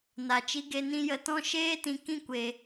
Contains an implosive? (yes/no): no